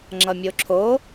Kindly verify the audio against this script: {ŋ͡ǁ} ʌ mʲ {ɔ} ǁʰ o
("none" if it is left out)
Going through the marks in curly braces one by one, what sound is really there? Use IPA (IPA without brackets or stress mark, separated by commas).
ŋ͡ǁ, o